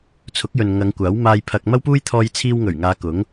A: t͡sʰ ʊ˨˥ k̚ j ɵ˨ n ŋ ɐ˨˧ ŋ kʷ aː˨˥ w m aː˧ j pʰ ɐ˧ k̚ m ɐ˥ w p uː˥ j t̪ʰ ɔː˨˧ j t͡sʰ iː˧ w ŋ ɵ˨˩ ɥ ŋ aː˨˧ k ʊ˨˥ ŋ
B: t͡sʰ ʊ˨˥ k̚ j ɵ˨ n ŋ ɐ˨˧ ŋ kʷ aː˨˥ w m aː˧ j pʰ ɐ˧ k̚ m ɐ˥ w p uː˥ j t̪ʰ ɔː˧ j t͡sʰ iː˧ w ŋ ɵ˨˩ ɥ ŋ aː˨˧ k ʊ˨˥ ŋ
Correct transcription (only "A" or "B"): B